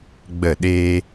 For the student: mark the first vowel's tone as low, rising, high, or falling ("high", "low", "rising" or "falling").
falling